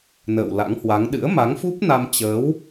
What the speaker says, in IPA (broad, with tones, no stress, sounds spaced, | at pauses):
n ə̰ː˧˨ w l a̰˧˥ ŋ h w a˨˦ ŋ ɗ ɨ̰˧˥ ə̯ m a˨˦ ŋ f u˦˥ p̚ n a˧ m t͡ɕ əː˨˦ w